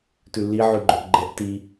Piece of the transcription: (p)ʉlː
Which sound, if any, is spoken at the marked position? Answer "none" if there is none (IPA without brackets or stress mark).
t